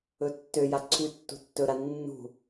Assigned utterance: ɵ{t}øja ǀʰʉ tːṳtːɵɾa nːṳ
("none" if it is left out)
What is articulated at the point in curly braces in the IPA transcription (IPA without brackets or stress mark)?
tː